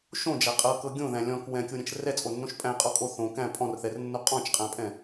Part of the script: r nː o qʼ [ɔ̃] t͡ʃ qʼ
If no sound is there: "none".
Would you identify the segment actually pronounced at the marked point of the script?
ɔ̃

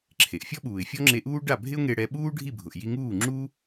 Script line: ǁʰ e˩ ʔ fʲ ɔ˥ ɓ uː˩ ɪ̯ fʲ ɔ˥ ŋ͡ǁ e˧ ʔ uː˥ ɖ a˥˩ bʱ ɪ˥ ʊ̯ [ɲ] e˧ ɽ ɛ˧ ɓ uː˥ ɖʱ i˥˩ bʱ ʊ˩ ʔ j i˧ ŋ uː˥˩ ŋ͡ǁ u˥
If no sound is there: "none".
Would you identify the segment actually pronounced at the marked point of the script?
ŋ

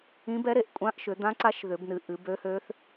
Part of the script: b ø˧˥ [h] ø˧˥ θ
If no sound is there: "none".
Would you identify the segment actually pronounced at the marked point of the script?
h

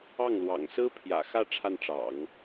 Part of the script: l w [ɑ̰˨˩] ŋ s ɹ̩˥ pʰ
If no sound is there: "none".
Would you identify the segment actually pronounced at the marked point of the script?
ɑ̰˨˩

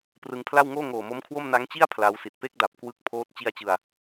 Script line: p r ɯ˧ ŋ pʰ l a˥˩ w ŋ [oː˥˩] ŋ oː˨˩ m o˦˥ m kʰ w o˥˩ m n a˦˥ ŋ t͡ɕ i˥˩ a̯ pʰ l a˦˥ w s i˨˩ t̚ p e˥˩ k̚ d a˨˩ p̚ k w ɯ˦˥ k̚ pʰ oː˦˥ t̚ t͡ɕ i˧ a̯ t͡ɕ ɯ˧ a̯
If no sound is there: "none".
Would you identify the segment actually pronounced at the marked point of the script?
oː˥˩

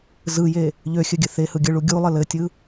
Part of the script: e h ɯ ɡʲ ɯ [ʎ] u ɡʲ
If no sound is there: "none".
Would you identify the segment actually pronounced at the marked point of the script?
ɭ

